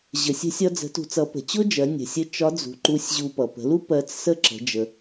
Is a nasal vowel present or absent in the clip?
absent